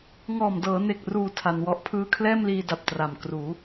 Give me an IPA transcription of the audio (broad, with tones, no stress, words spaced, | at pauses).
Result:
ŋɔː˨˩mdɤː˩˦ne˨˩k̚ruː˨˩ tʰa˧nwɔ˦˥ʔ pʰɯː˦˥kʰlɛː˥˩mliː˧da˨˩p̚ tra˨˩mkruː˩˦